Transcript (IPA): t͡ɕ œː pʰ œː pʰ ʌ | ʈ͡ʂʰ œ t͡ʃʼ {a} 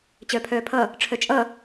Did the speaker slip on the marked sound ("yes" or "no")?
yes